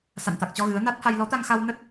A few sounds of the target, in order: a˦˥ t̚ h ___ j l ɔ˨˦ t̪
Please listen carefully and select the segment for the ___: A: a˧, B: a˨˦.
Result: A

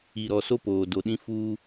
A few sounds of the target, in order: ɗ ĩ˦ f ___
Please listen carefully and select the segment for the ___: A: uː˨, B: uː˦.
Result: B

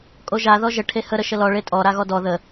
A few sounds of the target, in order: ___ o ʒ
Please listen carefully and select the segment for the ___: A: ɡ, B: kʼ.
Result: B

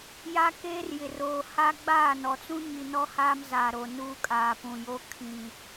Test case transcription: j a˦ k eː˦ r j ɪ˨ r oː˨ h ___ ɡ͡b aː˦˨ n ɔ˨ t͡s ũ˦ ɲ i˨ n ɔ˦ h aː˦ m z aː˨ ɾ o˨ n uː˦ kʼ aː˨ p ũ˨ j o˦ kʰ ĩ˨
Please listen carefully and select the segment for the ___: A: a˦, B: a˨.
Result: A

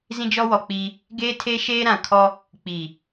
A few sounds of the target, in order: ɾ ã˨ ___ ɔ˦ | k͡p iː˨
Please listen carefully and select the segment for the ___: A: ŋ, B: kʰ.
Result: B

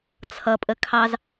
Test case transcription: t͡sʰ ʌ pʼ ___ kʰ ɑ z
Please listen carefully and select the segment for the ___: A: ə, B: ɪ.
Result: A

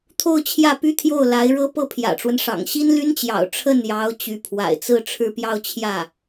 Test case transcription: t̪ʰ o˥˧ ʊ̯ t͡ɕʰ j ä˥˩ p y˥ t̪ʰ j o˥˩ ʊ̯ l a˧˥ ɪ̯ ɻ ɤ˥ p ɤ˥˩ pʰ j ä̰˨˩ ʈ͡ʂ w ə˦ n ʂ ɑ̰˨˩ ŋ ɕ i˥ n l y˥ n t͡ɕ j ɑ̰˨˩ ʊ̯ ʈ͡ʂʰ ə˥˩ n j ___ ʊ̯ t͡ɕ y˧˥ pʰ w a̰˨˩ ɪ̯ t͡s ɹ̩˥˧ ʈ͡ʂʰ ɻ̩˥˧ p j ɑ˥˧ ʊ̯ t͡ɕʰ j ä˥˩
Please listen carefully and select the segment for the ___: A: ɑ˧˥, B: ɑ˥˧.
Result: A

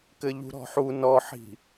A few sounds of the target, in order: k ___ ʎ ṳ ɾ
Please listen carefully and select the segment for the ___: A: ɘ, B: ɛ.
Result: A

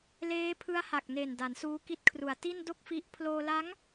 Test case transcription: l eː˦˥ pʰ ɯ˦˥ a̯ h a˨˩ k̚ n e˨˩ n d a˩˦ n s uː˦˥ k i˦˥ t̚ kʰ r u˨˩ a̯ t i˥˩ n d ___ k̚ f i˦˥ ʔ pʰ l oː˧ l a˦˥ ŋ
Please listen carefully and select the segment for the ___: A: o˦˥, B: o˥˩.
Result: B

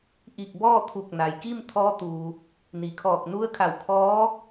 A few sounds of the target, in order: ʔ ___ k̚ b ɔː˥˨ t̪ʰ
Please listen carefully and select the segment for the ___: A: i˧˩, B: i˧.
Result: A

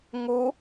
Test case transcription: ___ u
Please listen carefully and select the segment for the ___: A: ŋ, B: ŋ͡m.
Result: A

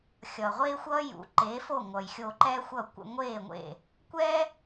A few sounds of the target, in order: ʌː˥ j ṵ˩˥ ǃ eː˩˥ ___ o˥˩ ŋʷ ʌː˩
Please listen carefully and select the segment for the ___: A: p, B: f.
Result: B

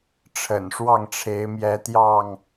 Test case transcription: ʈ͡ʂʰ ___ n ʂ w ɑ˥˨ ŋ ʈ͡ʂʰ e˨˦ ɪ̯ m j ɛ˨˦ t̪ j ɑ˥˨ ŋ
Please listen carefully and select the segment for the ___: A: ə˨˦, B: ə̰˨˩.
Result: B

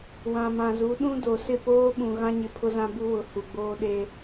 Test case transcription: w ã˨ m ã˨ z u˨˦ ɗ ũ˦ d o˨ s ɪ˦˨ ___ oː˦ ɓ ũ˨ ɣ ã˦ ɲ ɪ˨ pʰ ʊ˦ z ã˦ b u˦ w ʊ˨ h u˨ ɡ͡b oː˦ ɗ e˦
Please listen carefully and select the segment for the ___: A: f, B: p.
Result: B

